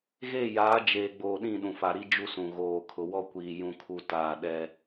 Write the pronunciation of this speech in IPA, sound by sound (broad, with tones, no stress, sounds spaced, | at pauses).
ɣ e˦˨ j aː˨˦ d͡ʒ eː˨ ɡ͡b oː˨ ɗ ĩ˦˨ ɗ ũ˨ f a˨ ɾ i˦ d͡ʒ u˦ s ũ˨ ɣ oː˨ kʰ ʊ˨ w ɔ˦ kʷ iː˨ j ũ˦ kʰ u˦ t aː˦˨ ɗ ɛ˦